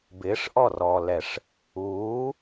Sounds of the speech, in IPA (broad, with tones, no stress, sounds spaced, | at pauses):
b ɪː˨˦ ʂ ʔ ɔ˦˨ r ɔː˨ l ɛ˨ ʂ | uː˨˦